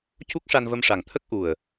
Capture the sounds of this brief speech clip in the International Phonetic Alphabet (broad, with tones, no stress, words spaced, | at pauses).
cu˦˥k̚ʂa˧nvə˧m ʂa˨˩ŋt̪ʰə˦˥k̚ ʔu˨˩ə̯